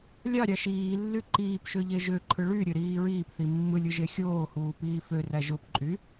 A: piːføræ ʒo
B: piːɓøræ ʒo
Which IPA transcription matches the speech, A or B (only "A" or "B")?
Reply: A